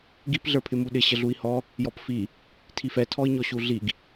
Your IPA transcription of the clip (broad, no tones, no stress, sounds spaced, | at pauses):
ɡ i p ɮ ə˞ pʰ ɪ m u ɗ ɪ ɕ ə ɮ u i̯ h ɔ | j ɔ p f i | tʰ i f ɛ tʰ ɔ i̯ ɲ ɔ ɕ u ɮ i ɡ